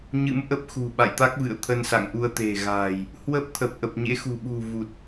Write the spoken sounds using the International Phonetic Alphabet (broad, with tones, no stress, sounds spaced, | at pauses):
ɲ ɨ̰˧˥ m ʔ ə˦˥ p̚ x ṳ˨˩ ɓ a̰˧˨ j t̪ a˦˥ k̚ v ɨ̰˧˨ ə̯ t̪ʰ ə˧ n s a̰˧˨ ŋ ʔ u˧ ə̯ t̪ e̤˨˩ ɣ a̤ː˨˩ j | h w ə˦˥ p̚ t̪ʰ ə˨˩ p̚ ʔ ə˨˩ p̚ ɲ ḛ˧˥ x ṳ˨˩ ɓ ṳ˨˩ v u˨˩ t̚